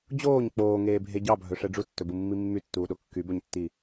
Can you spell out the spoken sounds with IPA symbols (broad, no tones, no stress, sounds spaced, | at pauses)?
d͡ʑ oː ɲ k͡p oː ŋ eː bʱ e ɟ ɑ bʱ ɵ ʂ ɛ ɖ͡ʐ u tː ɵ b u mː i mː y tː uː ɗ o kː y b ɵ ɲ tː i